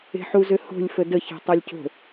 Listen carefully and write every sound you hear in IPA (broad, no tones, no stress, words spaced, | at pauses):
e̤ħuzøho̤lʲ fədə çe̤tˤalʲco̤